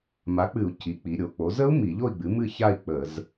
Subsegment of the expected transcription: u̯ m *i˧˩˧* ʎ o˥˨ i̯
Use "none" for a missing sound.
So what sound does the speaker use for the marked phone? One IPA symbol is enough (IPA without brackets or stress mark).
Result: i˧˩˧